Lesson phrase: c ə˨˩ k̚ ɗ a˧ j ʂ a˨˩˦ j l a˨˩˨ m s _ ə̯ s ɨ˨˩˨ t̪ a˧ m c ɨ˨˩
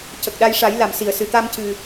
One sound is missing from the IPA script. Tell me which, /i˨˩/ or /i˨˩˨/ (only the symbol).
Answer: i˨˩˨